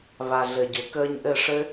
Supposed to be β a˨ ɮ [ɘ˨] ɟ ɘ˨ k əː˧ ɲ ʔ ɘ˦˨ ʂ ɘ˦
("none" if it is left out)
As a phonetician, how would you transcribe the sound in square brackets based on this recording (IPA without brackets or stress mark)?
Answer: ɘ˨